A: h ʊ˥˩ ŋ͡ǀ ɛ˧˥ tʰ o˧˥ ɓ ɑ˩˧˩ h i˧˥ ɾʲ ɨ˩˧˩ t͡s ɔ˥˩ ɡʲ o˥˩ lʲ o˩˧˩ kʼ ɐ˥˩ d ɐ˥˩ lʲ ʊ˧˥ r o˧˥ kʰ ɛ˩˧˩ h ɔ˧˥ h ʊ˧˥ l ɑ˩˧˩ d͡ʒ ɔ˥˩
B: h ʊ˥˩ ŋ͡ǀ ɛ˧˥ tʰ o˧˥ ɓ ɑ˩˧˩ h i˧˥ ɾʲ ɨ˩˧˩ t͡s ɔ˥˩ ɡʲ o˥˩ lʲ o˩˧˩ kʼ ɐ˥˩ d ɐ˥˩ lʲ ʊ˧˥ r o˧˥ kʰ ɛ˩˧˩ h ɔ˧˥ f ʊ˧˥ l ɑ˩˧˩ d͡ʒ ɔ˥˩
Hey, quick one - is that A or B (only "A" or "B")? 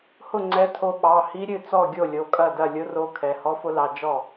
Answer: B